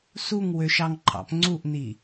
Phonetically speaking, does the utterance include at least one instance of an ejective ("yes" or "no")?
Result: no